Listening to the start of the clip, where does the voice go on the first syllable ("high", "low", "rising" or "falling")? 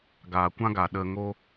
low